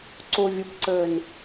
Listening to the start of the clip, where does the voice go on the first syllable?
low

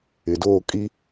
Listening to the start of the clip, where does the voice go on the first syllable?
low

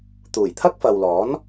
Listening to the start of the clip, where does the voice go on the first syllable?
low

